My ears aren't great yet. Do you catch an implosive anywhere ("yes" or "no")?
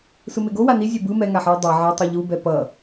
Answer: no